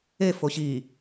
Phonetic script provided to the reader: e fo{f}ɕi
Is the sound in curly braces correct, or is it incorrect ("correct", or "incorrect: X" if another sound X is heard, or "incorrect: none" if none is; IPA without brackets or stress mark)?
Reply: incorrect: none